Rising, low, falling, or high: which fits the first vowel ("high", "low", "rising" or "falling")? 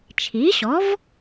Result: rising